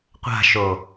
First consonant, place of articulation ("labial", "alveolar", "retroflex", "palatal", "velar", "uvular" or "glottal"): uvular